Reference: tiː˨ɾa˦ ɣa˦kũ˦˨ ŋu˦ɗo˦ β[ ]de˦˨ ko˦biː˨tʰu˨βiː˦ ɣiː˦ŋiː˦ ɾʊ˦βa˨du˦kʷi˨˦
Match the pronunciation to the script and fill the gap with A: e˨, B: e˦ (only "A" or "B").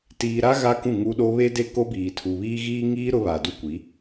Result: B